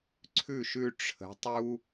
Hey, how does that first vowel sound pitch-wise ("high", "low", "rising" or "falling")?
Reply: falling